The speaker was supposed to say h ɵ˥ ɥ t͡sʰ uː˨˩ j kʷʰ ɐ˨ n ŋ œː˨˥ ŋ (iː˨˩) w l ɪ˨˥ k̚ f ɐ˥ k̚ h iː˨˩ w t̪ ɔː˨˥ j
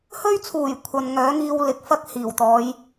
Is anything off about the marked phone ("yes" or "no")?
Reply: yes